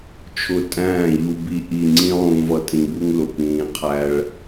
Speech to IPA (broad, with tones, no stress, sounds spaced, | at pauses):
t͡ʃʰ ʊ˧ tʼ æ̃ː˦˨ ʎ u˧ b i˧ ʔ i˧ ŋ͡ǀ ĩ˦ lˠ ũː˧ v ʌ˧ tʼ ĩ˧ b u˦ ŋ l ʊ˨ p ĩː˧ qʰ æ˦ ɭ